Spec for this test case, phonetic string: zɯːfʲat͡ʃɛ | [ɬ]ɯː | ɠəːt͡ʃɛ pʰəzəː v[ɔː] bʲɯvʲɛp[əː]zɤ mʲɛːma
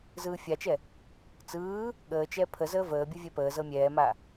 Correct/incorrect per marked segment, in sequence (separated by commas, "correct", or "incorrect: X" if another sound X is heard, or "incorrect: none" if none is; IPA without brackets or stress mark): incorrect: t͡s, incorrect: əː, correct